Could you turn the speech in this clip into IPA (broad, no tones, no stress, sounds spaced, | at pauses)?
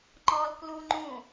ŋ͡ǃ ɔ l k l u ŋ͡ǃ ũ